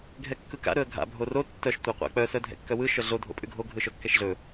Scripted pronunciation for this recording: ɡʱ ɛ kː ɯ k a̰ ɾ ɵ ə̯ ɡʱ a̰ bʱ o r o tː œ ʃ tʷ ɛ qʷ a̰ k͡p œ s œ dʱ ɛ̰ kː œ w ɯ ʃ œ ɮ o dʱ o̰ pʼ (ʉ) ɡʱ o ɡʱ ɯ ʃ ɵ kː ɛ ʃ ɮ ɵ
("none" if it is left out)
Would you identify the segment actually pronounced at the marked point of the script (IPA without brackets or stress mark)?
ʉ